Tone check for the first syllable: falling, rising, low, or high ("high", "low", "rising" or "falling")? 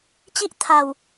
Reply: high